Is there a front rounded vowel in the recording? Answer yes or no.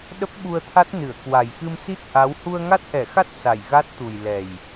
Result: no